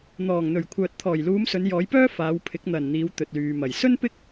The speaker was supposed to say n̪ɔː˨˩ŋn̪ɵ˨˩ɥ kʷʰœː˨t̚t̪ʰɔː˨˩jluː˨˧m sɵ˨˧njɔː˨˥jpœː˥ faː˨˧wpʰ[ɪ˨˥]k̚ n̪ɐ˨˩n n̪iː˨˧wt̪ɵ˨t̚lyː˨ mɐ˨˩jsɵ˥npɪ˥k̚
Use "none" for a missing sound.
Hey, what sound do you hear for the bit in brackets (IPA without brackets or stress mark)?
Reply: ɪ˨˥